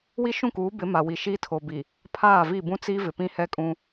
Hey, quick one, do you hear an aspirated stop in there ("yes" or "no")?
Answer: yes